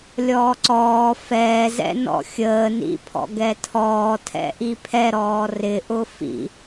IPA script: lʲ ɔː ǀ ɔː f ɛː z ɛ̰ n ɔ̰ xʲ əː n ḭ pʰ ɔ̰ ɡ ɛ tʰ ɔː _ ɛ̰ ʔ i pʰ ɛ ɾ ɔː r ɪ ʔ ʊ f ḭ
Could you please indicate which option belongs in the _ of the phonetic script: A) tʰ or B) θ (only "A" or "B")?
A